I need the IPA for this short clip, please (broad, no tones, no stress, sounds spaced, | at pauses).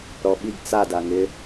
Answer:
ɾ ɔ ɓ i ɡ t͡s a d a ŋ ɪ